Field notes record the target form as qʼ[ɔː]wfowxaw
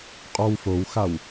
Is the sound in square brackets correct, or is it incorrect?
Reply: incorrect: ɔ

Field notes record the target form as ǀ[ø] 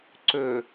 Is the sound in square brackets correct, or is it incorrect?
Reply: correct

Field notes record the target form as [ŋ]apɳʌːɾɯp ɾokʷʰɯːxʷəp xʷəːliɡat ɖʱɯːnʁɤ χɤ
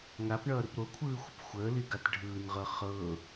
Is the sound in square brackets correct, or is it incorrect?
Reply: correct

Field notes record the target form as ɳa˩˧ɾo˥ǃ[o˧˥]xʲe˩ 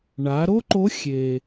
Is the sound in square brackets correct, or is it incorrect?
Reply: correct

